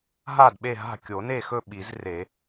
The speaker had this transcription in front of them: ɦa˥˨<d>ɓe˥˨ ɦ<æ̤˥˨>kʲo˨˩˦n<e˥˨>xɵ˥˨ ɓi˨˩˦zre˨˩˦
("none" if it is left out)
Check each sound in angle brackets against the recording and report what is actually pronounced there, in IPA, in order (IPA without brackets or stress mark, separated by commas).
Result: d, a̤˥˨, e˥˨